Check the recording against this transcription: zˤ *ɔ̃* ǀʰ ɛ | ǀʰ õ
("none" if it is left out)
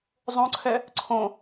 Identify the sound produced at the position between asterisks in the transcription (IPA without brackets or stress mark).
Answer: õ